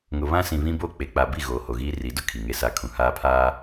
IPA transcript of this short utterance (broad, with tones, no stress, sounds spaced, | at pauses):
ŋ ʊ˨ β ã˦ s ĩ˨ β ĩ˦ b o˦˨ k͡p e˨ k͡p a˨ b i˦˨ ɣ oː˨ h o˨ ɣ iː˦ r i˨˦ d ʊ˦ kʰ i˨ ŋ e˦ s a˦ kʰ ũ˨ h aː˦ pʰ aː˦